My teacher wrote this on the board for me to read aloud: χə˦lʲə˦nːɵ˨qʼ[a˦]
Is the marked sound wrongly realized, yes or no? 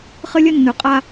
no